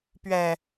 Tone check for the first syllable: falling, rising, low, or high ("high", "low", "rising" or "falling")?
low